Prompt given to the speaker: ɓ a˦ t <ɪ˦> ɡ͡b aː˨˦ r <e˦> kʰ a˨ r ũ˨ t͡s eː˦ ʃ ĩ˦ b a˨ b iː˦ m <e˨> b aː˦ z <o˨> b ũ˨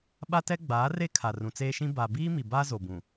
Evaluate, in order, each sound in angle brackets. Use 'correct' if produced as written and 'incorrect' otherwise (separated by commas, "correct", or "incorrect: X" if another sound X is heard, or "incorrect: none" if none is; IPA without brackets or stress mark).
incorrect: ɛ˦, correct, incorrect: i˨, correct